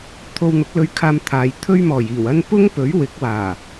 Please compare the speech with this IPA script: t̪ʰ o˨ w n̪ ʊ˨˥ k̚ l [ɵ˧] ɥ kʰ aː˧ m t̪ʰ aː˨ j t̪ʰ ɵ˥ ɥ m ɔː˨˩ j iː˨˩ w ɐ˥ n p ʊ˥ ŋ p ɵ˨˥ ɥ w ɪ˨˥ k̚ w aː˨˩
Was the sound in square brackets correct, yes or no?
yes